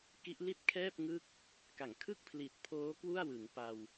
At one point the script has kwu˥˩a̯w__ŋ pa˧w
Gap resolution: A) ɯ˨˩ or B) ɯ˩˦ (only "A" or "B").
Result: B